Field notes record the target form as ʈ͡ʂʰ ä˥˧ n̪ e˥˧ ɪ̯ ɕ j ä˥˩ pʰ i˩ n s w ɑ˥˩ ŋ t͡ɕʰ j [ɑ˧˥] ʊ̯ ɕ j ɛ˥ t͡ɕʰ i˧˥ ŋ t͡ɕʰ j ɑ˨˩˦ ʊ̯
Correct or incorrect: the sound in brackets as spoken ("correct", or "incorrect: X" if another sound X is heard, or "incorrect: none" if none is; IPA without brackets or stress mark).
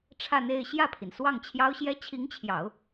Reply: incorrect: ɑ˥